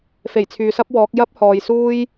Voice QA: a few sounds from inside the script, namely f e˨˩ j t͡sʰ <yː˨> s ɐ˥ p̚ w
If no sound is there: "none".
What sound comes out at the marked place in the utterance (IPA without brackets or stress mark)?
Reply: yː˨